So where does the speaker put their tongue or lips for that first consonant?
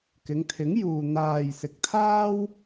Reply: velum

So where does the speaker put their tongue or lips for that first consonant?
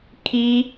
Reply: velum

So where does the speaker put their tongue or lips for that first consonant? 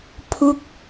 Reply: lips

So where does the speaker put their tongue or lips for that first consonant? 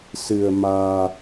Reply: tongue tip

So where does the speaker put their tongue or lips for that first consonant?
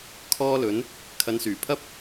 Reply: velum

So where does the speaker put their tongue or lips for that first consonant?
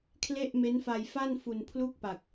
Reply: velum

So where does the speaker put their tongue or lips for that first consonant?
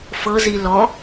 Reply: lips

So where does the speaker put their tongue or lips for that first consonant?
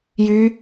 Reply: palate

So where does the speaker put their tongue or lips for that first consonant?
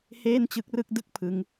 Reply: throat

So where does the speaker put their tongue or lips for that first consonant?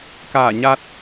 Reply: velum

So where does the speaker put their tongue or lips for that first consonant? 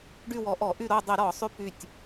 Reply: retroflex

